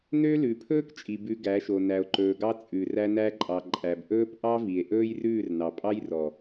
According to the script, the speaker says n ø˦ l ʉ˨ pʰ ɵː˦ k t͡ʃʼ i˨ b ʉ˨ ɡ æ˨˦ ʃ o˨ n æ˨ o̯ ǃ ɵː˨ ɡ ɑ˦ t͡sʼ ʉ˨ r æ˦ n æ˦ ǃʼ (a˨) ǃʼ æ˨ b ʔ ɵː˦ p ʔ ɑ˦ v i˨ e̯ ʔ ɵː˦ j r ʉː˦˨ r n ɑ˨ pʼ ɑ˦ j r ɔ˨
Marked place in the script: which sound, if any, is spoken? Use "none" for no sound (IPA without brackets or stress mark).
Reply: ɑ˨